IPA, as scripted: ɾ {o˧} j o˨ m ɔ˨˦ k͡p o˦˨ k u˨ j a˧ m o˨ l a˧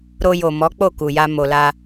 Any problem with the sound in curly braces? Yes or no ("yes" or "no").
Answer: no